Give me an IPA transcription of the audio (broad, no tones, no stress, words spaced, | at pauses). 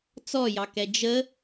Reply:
t͡sɔjɑkɛ d͡ʒə